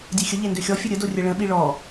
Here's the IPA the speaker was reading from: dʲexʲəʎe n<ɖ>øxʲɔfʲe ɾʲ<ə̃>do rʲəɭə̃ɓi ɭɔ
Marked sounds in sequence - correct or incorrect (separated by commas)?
incorrect, incorrect